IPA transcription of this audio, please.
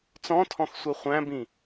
t͡sɔ̃tʰɔ̃xsʷɛ χʷæ̃bĩ

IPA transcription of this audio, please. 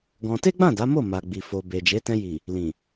ɡɔ̃˧ te˦ɡ͡bã˦˨ da˨˦mo˦˨ma˨ ɡ͡bi˨fo˨be˨ d͡ʒe˨˦tɛ̃˧ji˨ | lĩ˨

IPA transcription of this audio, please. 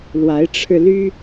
lwa˨˦ɪ̯ʈ͡ʂʰɻ̩˧ly˦

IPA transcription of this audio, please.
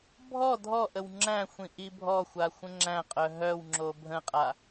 bʱɔ dʱɔʔəw ŋ͡ǁæ̃xʷĩ ʔibʱɔxʷa xʷə̃ŋ͡ǁæ̃qʼœ ɦœwŋ͡ǁo bʱə̃qʼa

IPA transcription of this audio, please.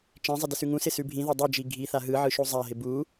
t͡ʃẽzˤɪ dɪsʉŋũsɪ sʉbʱĩðe dˤid͡ʒi ɡʱi θaɦɯʕɯ ʃuzˤaɦɪ bu

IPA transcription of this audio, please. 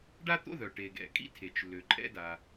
ɖa˥t̪o̰˥ðœ˩ ʈe˩ɡɛ̰˩kʼḭ˥ tʰe˩t͡ʃ lø˩ ǃʼɛ̰˥da˩

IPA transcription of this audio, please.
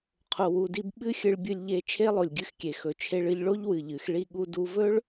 qʰo˧wu˧di˥b ɓɨ˥xʲɨ˧ɭ bʲɨ˧lʲʎe˧ t͡ʃʰe˥lˠo˩lʲɡʲɨ˧xkʲe˩ xɵ˩t͡ʃʰe˧ɭɨ˧ʎɭo˥ʎ wɨ˩ʎɨ˩x ɭi˧ɠu˧ du˧vɵ˥ɭ

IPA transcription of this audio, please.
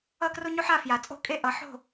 ʌ˥˧kro˥ɲo˥ħ a˥˧fja˧t͡sʼo̤˥kʼe˥˧ ʔʌ˧ ħo̤˥˧

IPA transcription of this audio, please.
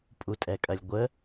pʼutʼɛkʼɐlʲɡʷə

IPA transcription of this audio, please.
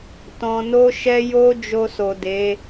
tɔ̃˨no˧ʃɛ˧ jo˦ d͡ʒo˧so˨ de˨˦

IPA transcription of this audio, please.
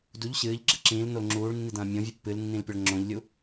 duʎ ɕɨːʎɡ͡ǁɘ ǁĩːlnol ŋ͡ǁuːɭnːidɐ̃ː mʲõvʲɨ pːɨlnːĩlpʲɐɭ ŋ͡ǁõʎlʲu

